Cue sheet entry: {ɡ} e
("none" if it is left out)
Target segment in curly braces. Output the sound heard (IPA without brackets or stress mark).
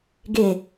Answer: ɡ